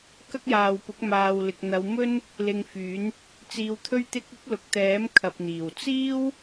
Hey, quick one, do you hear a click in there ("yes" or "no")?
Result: no